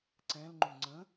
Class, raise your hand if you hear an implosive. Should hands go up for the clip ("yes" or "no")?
no